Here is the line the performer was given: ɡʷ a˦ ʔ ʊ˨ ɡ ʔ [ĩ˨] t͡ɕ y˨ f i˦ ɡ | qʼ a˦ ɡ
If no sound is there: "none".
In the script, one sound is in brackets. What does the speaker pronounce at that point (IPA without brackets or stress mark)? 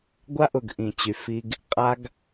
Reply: ĩ˨